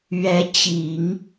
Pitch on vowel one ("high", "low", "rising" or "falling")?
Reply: rising